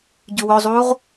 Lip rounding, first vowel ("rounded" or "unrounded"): rounded